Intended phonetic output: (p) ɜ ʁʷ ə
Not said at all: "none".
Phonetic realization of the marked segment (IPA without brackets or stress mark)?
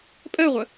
pʼ